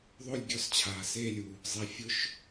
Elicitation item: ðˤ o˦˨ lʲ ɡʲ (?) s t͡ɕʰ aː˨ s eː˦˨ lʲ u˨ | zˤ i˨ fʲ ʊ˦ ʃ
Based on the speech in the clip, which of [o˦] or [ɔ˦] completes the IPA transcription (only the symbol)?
ɔ˦